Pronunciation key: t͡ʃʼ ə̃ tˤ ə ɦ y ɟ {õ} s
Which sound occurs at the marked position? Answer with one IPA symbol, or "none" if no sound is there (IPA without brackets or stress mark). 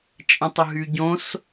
õ